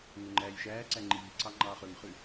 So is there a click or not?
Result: yes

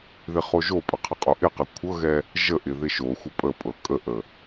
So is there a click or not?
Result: no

